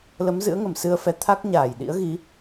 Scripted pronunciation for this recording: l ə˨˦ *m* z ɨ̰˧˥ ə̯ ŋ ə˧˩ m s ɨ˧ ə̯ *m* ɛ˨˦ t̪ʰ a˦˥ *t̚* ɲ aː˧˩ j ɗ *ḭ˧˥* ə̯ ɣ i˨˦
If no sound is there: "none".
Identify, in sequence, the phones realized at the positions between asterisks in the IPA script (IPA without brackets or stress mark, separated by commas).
m, f, k̚, ḭ˧˥